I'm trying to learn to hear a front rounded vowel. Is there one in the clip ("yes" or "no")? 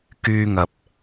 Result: yes